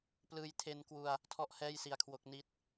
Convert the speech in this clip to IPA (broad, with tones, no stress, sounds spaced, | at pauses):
p l ɯː˧ j tʰ e˧ n k w u˧ a̯ | tʰ ɔ˥˩ ʔ h ɛː˥˩ j s i˧ a̯ kʰ w o˦˥ k̚ n i˥˩ t̚